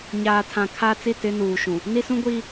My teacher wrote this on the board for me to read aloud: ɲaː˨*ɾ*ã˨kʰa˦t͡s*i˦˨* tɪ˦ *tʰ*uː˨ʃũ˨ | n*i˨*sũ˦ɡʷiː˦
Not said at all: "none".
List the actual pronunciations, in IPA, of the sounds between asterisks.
tʰ, i˦˨, n, i˦

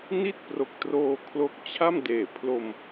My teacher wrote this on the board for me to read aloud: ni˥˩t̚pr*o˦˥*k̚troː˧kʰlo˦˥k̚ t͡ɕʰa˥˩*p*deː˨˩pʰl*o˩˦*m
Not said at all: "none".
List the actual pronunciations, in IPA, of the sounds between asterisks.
o˨˩, m, o˧

